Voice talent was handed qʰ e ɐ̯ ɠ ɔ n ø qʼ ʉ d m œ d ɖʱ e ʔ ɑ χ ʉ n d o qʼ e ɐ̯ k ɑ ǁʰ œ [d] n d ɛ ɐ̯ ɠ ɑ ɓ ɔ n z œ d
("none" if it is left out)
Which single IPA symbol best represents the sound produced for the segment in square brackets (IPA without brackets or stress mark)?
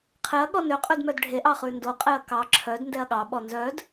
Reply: d